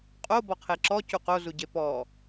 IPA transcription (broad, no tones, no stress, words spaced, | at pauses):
qʼo bɔqʰeǁɔ cuqozuɟe pɔ